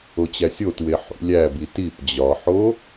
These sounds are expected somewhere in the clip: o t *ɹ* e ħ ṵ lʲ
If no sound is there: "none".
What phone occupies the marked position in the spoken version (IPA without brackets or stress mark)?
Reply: w